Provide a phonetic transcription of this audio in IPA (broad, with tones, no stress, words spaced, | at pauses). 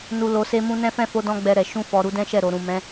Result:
nu˨ lo˧se˦mũ˦ nɛ̃˦fɛ̃˦˨fo˧ dɔ̃˦ɡ͡bɛ˧ɾɛ˨ ʃũ˧fɔ˨ ɾu˨˦dɛ̃˦ʃɛ˦˨ɾo˨ ɾũ˨ mɛ̃˨˦